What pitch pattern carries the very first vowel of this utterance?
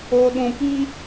low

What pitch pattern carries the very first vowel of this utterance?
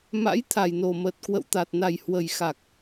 rising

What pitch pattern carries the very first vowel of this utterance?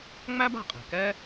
high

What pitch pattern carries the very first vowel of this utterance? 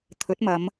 rising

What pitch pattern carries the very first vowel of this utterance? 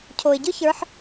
low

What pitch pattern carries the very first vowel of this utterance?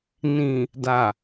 low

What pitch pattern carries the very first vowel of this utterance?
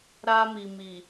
high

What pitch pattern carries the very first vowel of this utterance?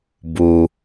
low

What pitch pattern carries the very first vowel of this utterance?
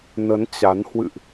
rising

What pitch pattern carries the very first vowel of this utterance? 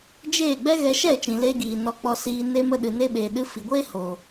falling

